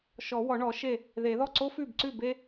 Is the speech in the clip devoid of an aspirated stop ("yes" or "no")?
yes